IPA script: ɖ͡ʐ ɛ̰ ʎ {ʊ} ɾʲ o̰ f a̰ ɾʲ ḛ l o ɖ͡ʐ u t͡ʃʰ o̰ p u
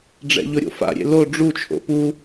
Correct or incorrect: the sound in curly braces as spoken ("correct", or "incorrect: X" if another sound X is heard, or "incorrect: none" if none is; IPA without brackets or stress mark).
correct